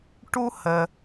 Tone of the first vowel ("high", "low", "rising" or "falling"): high